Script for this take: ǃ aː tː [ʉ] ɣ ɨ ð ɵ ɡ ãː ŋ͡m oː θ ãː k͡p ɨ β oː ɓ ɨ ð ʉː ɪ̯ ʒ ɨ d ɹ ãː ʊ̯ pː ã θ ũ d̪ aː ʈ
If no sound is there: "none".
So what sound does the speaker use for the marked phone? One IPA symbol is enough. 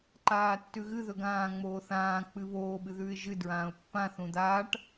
ʉ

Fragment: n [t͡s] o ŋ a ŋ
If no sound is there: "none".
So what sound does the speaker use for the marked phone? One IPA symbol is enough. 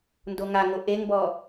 d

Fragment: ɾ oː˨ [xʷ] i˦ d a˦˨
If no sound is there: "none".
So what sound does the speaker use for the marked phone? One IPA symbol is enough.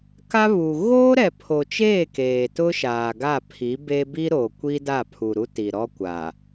kʷ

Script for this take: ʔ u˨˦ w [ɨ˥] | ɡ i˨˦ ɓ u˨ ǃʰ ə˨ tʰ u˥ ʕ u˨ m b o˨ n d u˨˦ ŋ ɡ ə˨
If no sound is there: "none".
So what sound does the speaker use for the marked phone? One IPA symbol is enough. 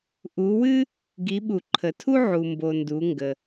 ɨ˥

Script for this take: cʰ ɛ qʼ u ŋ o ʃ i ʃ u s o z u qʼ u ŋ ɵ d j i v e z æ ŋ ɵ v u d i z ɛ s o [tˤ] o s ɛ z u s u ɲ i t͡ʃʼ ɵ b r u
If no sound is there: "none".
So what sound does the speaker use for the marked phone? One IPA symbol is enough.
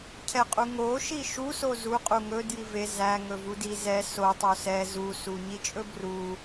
tˤ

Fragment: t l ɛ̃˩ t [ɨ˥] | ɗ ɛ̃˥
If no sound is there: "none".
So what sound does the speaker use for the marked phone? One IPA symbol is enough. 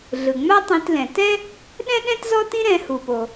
ɛ˥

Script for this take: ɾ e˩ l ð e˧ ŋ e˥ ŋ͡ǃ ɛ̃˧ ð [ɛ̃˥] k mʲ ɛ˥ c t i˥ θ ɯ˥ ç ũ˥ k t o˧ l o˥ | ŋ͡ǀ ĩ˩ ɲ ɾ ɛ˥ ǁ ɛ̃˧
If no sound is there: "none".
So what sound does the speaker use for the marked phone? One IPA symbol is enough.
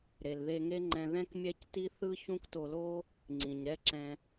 ɛ̃˥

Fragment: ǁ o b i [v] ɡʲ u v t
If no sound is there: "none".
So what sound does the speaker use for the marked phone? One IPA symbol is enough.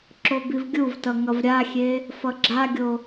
v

